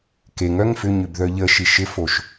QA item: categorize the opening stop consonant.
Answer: plain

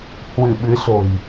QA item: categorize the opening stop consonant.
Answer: implosive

